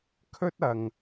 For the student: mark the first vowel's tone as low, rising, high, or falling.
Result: high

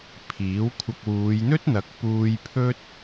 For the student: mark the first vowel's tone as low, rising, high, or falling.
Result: rising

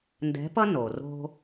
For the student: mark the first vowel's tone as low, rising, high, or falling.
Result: rising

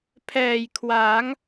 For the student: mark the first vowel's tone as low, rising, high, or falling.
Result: low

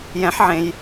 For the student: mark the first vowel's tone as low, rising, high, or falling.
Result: rising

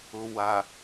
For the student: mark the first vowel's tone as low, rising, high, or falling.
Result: low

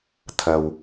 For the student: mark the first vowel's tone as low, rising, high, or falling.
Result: low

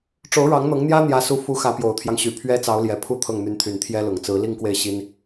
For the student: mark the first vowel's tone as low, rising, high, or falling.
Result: rising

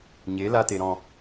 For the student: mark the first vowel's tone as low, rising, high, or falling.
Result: rising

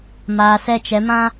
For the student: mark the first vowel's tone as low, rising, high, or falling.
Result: low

